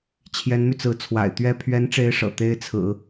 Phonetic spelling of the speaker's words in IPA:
t͡ɕʰ j ɛ˧˥ n m y˧ t͡s ɹ̩˧˥ t͡sʰ w a̰˨˩ ɪ̯ t̪ ɥ ɛ˥ pʰ ɥ ɛ˧˥ n ʈ͡ʂ e˧˥ ɪ̯ ʂ ɤ̰˨˩ t̪ e˥ ɪ̯ t͡sʰ ɹ̩˨˩˦

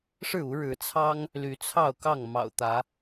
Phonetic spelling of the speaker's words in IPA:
ʂ ɻ̩˥˨ u˨˦ ɻ ɻ̩˨˦ t͡sʰ ɑ˦ ŋ | l y˨˦ t͡sʰ ɑ˥˨ ʊ̯ k ɑ˥˨ ŋ m ɑ̰˨˩ ʊ̯ t̪ ä˨˦

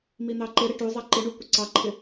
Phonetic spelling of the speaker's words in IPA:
m i n̪ ɑ ǃ ɪ ɾ ɪ ʈ u zˤ ʌ ǃ ɪ ɳ u kʷ ɪ ǀ ɑ ǃʰ ɪ

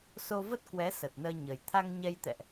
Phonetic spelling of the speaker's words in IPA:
s o˧ v ə˦˥ t̚ k w ɛ˨˦ s ə˨˩ t̚ n əː˧ ɲ ə˨˩ j t̪ʰ a˧ ŋ ɲ ɛ˧ j t̪ ɛ̰˧˨ ʔ

